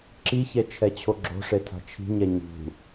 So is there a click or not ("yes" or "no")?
yes